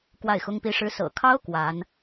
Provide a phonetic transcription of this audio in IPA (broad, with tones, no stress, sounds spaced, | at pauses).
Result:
k w a˥˩ ɪ̯ x ʊ˥ ŋ p i˥ ʂ ɻ̩˥ s ɤ̰˨˩ kʰ ɑ˥ ʊ̯ k w a˧˥ n